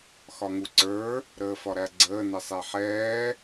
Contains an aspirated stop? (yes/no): no